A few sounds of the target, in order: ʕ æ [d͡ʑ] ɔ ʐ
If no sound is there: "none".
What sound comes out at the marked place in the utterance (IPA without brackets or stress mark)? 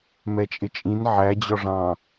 d͡ʑ